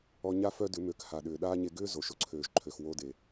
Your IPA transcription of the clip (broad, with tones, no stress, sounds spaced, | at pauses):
ɔ˧ ɲ a˦ f œ˦ d ʏ˨˦ m ø˨˦ k h a˨ ɗ ʏː˨ ɗ aː˦ ɲ e˧ ɡ ʏː˦ z o˨ ʃ ʊ˧ ǀʰ øː˨ ʒ ǃʰ ø˨ x w o˧ d e˨